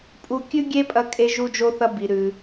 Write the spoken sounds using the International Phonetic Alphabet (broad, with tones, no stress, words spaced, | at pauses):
pʼu˧ kʲʉ˥ɡʲe˥pʼɐ˧kʼe˧ ʒu˧d͡ʒo˧θɐ˧ bi˩ɾʉ˩